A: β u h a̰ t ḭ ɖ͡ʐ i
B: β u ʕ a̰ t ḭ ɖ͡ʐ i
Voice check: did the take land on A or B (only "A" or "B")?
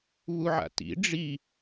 B